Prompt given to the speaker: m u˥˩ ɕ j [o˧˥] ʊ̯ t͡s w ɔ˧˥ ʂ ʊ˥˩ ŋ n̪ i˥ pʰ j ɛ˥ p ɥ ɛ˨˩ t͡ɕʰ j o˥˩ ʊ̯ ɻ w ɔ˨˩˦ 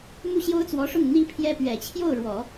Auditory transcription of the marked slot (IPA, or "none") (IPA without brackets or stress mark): o˥